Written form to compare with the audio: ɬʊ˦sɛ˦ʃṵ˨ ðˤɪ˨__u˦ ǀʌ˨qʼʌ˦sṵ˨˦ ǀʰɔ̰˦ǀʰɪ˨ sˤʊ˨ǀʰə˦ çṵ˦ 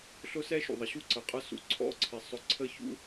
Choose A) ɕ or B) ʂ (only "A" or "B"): A